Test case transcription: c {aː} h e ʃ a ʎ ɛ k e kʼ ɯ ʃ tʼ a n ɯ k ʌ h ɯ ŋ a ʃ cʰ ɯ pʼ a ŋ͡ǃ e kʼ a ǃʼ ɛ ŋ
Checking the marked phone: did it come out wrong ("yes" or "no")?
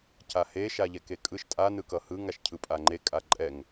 yes